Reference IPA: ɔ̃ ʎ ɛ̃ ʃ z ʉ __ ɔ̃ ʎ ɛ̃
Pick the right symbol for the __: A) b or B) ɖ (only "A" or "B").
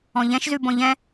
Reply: A